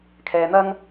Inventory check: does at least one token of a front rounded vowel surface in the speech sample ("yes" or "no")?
no